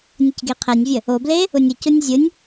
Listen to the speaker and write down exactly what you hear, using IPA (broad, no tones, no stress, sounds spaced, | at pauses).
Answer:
nʲ ə c ɡ e qʰ ɛ nʲ vʲ ə | o b l e | ʊ nʲ ə c ʊ nʲ zʲ ɯ nʲ